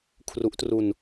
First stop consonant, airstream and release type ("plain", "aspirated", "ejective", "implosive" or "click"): aspirated